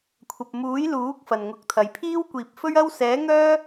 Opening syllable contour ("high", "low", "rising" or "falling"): low